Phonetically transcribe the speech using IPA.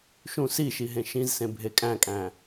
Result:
ʃ ũ s i ʃ i ɦ ẽ ʃ ĩ z s ẽ bʱ e kʼ æ̃ kʼ æ̃

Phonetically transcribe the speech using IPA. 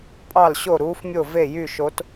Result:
pʼ ɑ˥˨ l ɕ o˥˨ ɾ uː˧˥ f mʲ o˥˨ v e˥˨ j y˥˨ ʃ o˧˥ t

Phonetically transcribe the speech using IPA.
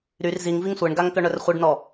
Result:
ɾ y r z i ŋ v i ŋ sʷ e ɳ ɡ a ŋ t̪ œ ɳ œ r χʷ e ɖ n ɔ

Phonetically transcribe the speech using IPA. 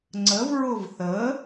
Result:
ŋ͡ǀ ə v ɹ ʊ v θ ə

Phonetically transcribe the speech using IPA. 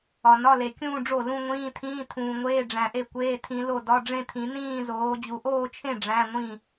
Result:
ɒ˨ n ɒ˧˥˧ l e˨ kʲ ũː˥˧ ɖ͡ʐ o˥˩ l ũ˥˧ ŋʷ ĩː˧˥˧ tʰ ĩː˧˥˧ tʰ ũː˨ ŋʷ eː˧˥˧ ɖ͡ʐ æ̃˨ ʔ e˥˩ kʷ eː˧˥˧ tʰ ĩ˨˦ l o˥˩ d ɒ˧˥˧ ɖ͡ʐ ẽ˥˧ t̪ʰ ĩ˨˩˦ n ĩː˥˧ z oː˨˦ d͡ʑ u˨ ʔ oː˥˧ t͡ʃʰ ẽ˥˩ ɖ͡ʐ æ̃˧˥˧ ŋʷ ĩ˥˩

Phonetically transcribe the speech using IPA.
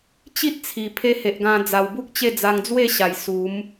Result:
t͡ɕ i˦ t̚ t͡sʰ i˨˩ pʰ e˧ h e˨ ʔ ɡ ã˧ d͡z a˨˩ w b u˦ k̚ t͡ɕ e˥˧ d͡z a˧ ŋ d͡z w e˥˧ ɕ a˨˩ j s u˨˦ m

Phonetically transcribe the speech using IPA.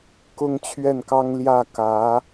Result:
k ʊ˥ ŋ t͡ɕʰ ɥ ɛ˥˩ n k ɑ˥ ŋ l j ä˥˩ k ä˧˥

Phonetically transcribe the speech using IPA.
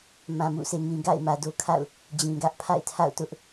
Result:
m ã˨ m ṵ˦˨ sʰ e˨ ŋ ĩ˨ ɡ a̰˦˨ ɪ̯ m ä˨ d o˦ kʰ a̰˦˨ ʊ̯ | d͡ʑ ĩ˨ ɡ ä˦ ʔ pʰ a̰˦˨ ɪ̯ tʰ a̰˦˨ ʊ̯ t ʊ˦ ʔ

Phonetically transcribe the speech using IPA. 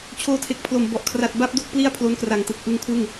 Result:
t͡ɕʰ oː˧ tʰ e˨˩ k̚ pʰ l o˨˩ m b ɔ˨˩ ʔ kʰ r a˨˩ t̚ b a˦˥ p̚ d o˥˩ k̚ p l i˥˩ a̯ pʰ l o˦˥ n k r a˨˩ ŋ t ɯ˨˩ k̚ ʔ ɯ˧ ŋ kʰ w ɯ˥˩ ŋ

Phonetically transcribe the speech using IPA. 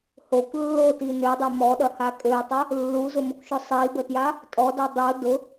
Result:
h o kʷ lː o t i n ø dˤ ø m ɔ ɗ ɐ h a kʼ ø tˤ ʊ | lː u z ʊ m ʊ kʷ ʃ ʊ sˤ i b ə t j a | tʼ ɔ d ɔ dˤ o d ʊ

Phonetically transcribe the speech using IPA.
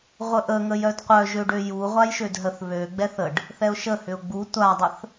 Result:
ʁʷ ə ʔ ə ŋ ə j œ d qʷ œ ʒ ø ɖ ø j u ʁʷ a j ʃ ø d ɦ ə θ β ø ɡ͡b ɛ θ ə ɖ | θ ɛ ʊ̯ ʃ ə h ʏ ʊ̯ ɡ͡b u tʷ a dˤ ə θ

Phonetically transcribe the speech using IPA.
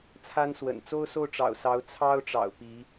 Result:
t͡sʰ a˥ n s w ə̰˨˩ n t͡s o˥ ʊ̯ s o˥˩ ʊ̯ ʈ͡ʂ ɑ̰˨˩ ʊ̯ s ɑ˧˥ ʊ̯ t͡sʰ ɑ˥ ʊ̯ ʈ͡ʂ ɑ̰˨˩ ʊ̯ p i˧˥

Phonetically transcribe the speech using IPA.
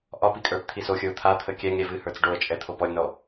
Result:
ʔ ɒ p i kʼ ə˞ p t̪ʰ i s o xʲ ə˞ ʊ̯ t̪ʰ a t̪ʰ ə kʲ ɛ ŋ ɾʲ ɛ v ɨ h ə˞ t͡s ɖ o ə̯ t͡ʃʼ ɛ t̪ʰ o p ɔ lʲ n ɔ

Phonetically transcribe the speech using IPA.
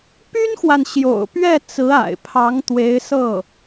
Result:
p y˥ n x w a˨ n ɕ j o̰˨˩ ʊ̯ p ɥ ɛ˥˩ t͡s ɹ̩˧˥ a̰˨˩ ɪ̯ pʰ ɑ˧˥ ŋ t̪ w e˧˥ ɪ̯ s ɤ˥˩

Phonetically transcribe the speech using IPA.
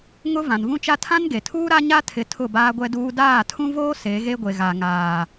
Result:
ŋ ʊ˦ v ã˨ n v ũ˦ t͡ʃ a˦ tʰ ã˦ n ɡ e˨ tʰ uː˦ ɾ a˦ ɲ a˦ tʰ ɪ˨˦ tʰ ʊ˦˨ b aː˦ ɡʷ ɛ˦ d uː˦ d aː˦˨ tʰ ũ˦ v oː˦ s e˨˦ ɣ e˦ ɡʷ e˨ ɣ a˨ ŋ aː˨

